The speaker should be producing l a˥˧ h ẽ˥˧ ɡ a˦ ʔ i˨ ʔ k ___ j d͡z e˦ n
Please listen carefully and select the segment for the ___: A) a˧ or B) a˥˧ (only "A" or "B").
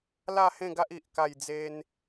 B